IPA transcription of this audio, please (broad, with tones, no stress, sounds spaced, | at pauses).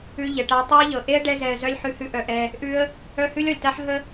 ʉ˧ ʎ ə˨ ʈ a˧ tˤ a˦ ə̯ ʎ ɤ˨ ʔ e˦ ə̯ ɖ ɛ˧ z ɛ˨ ə̯ z œ˧ lʲ ħ ʉ˧ h ʉ˧ ʔ œ˨ ʔ ɛ˧ | ʔ ʉ˧ ə̯ | œ˦ h ʉ˦ lʲ ɔ˨ lʲ t a˦ ħ ɦ ə˦